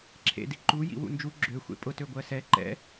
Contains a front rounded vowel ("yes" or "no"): yes